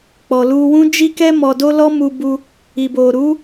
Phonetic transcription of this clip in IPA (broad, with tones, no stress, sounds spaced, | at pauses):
k͡p ɔ˨ l u˧ w ũ˦ d͡ʒ i˧ k ɛ˧ m ɔ˨ d o˧ l ɔ˦ m u˧ b u˧ | i˨ b o˨ ɾ u˨˦